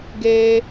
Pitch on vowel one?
high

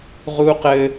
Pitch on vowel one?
high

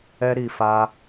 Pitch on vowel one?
high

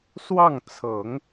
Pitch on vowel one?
falling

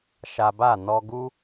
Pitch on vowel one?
low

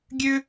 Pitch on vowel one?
high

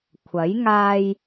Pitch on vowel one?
rising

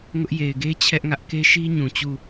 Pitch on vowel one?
high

